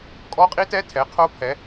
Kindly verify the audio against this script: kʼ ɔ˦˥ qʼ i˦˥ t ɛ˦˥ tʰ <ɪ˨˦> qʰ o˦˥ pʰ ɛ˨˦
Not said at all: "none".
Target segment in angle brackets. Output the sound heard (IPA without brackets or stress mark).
ɛ˨˦